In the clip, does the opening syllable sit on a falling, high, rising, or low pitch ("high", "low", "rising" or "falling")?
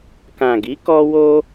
low